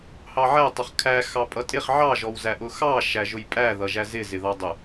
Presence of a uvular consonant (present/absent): present